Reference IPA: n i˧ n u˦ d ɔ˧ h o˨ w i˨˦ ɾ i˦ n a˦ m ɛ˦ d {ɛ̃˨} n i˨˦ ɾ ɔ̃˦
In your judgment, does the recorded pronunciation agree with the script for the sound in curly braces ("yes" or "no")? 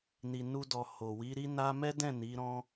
no